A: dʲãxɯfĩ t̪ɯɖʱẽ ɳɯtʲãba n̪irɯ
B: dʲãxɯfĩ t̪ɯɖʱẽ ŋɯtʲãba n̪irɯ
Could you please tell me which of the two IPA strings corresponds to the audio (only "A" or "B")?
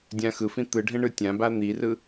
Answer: A